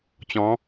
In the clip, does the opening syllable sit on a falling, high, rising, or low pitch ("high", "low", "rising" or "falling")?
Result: rising